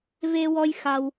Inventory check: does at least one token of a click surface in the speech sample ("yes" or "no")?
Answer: no